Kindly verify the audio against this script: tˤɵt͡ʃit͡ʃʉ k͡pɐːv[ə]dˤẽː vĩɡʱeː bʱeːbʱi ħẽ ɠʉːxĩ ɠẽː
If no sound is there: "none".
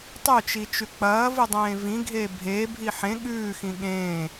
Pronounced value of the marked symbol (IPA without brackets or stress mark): ɨ